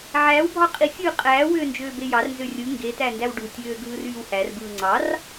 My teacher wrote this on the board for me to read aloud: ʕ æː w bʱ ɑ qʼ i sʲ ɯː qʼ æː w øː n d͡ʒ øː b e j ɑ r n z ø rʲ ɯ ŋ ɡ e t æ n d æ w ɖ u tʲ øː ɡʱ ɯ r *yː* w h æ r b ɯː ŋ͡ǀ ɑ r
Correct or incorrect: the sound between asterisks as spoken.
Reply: correct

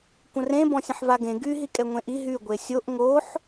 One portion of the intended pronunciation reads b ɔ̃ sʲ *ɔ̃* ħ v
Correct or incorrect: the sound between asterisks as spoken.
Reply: incorrect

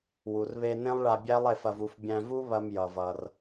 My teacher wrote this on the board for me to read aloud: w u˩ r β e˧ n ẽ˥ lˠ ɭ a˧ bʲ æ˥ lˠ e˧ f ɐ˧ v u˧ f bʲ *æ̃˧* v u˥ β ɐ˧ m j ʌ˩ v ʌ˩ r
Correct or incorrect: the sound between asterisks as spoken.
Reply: correct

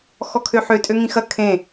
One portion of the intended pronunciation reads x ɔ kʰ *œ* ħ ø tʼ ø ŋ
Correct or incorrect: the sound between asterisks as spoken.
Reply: incorrect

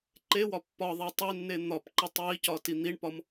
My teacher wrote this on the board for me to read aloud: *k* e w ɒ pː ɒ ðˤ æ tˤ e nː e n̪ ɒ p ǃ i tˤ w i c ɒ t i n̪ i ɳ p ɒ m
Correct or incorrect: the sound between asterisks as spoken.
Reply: incorrect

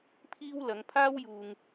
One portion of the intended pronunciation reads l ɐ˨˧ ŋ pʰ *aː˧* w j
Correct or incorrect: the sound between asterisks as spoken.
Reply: incorrect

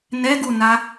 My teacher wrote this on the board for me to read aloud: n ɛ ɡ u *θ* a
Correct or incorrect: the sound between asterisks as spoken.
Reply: incorrect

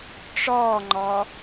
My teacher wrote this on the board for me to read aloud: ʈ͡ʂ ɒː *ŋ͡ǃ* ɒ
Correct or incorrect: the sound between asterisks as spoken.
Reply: correct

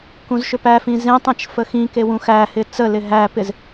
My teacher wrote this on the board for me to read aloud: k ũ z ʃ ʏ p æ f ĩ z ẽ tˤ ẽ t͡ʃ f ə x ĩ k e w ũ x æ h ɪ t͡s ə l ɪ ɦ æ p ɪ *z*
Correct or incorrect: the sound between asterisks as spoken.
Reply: correct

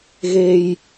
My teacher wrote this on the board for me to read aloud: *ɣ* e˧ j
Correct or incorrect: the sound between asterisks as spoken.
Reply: correct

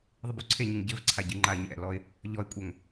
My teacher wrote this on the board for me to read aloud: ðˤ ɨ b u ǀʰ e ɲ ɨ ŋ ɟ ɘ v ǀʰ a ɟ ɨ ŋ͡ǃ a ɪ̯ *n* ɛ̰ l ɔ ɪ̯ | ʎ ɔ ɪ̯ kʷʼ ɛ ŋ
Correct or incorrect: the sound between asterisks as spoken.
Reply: incorrect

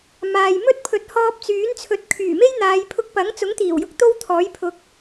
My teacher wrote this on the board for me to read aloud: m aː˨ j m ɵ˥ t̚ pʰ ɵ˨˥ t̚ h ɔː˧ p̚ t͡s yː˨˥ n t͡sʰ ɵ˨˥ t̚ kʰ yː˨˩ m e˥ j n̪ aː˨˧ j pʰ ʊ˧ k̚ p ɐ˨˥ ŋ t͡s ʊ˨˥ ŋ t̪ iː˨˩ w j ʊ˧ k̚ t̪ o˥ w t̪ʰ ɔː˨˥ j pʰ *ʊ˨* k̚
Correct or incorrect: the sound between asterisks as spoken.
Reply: incorrect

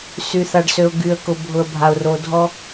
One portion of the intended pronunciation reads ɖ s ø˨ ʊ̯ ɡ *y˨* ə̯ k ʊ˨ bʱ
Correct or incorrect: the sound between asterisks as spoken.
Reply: correct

